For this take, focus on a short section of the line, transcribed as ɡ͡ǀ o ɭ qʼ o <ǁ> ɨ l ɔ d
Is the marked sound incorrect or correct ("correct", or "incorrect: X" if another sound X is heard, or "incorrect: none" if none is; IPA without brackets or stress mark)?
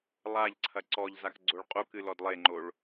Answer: incorrect: k